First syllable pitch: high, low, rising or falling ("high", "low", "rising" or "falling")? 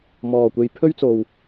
low